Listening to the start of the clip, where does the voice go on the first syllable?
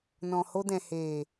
low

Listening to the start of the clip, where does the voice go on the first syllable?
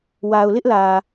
low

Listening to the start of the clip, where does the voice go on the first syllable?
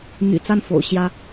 low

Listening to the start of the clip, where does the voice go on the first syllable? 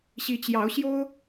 rising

